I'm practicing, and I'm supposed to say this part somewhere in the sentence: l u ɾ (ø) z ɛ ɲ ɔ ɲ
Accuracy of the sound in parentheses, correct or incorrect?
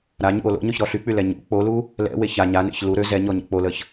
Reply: correct